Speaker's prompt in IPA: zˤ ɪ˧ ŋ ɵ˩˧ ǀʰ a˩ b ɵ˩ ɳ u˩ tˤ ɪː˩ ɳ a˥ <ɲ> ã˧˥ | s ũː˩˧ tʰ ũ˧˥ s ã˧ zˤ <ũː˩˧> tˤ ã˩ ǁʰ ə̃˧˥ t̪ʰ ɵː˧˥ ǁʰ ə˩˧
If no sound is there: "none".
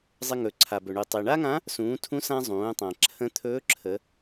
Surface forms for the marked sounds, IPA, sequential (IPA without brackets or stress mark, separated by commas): ŋ, ũː˩˧